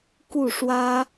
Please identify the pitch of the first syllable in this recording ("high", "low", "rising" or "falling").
falling